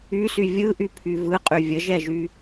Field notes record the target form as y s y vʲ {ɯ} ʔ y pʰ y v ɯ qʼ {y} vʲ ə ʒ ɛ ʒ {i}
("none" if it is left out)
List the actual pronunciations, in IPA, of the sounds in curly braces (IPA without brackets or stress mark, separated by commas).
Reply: ɯ, y, y